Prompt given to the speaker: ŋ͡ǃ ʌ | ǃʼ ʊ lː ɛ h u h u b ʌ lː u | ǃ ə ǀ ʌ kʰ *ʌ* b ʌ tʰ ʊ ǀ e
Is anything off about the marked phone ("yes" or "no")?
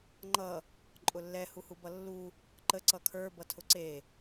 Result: yes